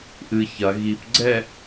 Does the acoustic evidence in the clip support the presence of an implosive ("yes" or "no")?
no